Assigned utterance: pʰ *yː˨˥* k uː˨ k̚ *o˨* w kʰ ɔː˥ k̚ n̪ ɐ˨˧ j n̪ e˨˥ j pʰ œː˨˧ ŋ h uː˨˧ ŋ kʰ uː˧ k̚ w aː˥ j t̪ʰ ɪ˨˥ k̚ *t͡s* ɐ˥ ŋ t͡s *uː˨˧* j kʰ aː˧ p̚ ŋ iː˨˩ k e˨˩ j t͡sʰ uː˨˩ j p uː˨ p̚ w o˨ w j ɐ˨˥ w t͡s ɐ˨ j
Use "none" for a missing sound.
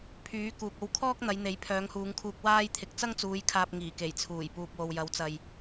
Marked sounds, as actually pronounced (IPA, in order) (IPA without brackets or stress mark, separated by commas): yː˨˥, o˧, t͡s, uː˨˧